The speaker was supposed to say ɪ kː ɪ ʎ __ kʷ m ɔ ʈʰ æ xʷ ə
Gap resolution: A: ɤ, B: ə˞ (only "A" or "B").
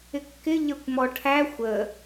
B